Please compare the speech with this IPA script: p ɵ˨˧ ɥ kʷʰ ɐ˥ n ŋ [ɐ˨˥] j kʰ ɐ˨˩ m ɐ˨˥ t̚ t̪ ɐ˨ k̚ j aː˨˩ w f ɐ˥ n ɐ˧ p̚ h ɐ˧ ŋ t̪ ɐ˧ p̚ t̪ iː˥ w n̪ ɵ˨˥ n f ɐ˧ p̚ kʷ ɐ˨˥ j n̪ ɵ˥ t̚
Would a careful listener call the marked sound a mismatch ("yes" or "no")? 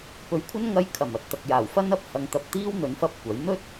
yes